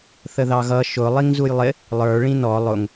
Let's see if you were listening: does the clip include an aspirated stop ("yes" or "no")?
no